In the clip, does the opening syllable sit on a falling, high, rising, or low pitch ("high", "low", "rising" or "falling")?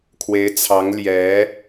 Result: rising